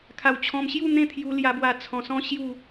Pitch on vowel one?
low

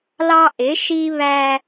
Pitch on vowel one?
high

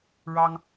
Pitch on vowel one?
high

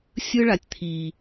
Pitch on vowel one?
high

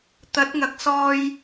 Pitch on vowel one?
rising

